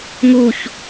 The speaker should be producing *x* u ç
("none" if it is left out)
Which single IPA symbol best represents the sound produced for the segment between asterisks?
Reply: ŋ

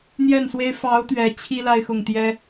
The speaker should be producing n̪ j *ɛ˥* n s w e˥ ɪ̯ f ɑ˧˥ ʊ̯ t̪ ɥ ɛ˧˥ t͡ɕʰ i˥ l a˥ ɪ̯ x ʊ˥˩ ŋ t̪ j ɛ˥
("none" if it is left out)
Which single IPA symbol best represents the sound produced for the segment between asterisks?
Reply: ɛ˥˩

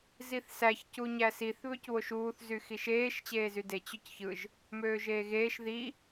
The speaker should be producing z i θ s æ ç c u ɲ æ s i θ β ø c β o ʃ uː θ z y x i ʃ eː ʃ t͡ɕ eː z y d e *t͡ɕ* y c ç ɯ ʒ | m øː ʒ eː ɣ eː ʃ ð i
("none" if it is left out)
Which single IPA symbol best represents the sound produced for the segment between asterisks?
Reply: t͡ɕ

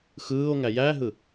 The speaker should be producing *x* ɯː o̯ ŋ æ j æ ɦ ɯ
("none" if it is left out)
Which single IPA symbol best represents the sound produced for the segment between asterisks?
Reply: x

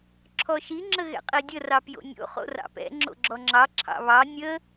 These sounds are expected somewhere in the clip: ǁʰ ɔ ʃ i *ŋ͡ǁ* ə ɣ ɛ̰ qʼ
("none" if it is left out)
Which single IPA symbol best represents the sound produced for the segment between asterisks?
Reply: ŋ͡ǁ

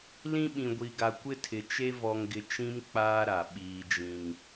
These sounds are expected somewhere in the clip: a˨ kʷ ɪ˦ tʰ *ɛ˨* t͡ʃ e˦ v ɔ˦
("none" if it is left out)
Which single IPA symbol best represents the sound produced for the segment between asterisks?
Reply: ɪ˨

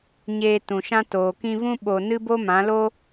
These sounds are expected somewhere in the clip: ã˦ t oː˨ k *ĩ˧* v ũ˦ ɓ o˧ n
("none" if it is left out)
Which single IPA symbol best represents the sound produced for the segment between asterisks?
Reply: ĩ˧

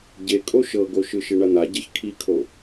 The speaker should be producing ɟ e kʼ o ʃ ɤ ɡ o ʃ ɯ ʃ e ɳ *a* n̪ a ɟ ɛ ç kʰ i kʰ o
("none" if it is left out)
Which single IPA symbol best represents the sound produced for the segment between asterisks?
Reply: a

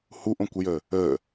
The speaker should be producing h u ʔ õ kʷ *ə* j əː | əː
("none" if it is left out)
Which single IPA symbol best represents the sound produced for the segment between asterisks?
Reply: ə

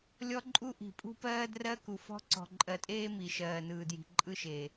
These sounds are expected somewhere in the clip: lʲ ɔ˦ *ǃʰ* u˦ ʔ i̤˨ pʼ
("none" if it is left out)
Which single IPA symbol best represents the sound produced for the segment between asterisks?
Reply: ǃʼ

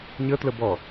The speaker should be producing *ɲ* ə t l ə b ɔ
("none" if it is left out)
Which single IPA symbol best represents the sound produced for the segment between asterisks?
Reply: ɲ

